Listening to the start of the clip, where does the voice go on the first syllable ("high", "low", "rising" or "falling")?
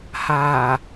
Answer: low